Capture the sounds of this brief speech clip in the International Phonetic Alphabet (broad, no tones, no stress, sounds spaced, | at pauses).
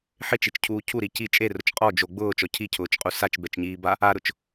ħ ɪ t͡ʃ i t͡ʃ cʰ uː cʰ u ɾ i c i t͡ʃʼ e r ʊ t͡ʃ qʼ ɔ d͡ʒ o ɡ͡b ʊː t͡ʃ ɔ cʰ i cʰ ʊː t͡ʃ qʼ u s a t͡ʃ b ɛ t͡ʃ ɲ iː b a | a ɾ ʊ t͡ʃ